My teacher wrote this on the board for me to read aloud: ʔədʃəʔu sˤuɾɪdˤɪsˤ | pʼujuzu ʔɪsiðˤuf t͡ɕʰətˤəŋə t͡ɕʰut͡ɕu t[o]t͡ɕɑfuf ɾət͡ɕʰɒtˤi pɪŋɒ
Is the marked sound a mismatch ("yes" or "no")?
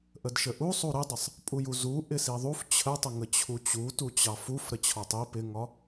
yes